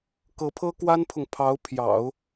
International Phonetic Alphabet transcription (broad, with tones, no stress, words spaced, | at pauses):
kɤ˧˥pʰɤ˥kwa˥npʰʊ˨ŋ pʰɑ˧˥ʊ̯pʰjɑ̰˨˩˦ʊ̯